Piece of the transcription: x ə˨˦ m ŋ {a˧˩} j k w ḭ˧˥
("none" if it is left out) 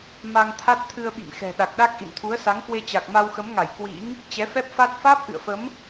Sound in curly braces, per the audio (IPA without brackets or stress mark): a˧˩